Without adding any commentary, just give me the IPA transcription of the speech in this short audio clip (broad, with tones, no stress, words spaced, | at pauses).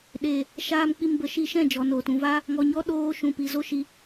ɗe˨ | ʃaː˧mk͡pi˧mbə˨˦ ʃi˧ʃɛ̃˦˨d͡ʒɔ˨noː˨t ũ˨va˦ | ŋɔ˨ɲɔ˦ ɗoː˦ ʃũ˨pi˨zo˦ʃi˧